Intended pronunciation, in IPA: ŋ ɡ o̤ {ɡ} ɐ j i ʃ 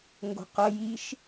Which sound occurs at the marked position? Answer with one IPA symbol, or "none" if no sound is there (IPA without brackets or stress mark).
q